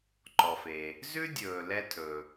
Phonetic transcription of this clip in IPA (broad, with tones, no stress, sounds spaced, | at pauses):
ǃ ɔ˩ f e˩ | z ʉ˥ dʲ ɵː˩ l ɛ˧ tʰ ɵ˩